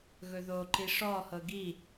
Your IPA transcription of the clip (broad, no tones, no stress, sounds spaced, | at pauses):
ɣ ɵ ð o ǃ i ʂ ɔ h ɤ ɡ i